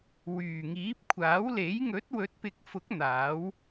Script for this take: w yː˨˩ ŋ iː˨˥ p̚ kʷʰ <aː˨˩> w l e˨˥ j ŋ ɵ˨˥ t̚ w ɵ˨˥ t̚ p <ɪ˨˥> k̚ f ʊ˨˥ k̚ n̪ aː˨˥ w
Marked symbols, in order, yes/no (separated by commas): no, yes